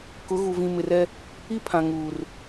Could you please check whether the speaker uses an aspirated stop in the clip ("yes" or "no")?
yes